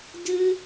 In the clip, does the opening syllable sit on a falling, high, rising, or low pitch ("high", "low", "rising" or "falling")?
high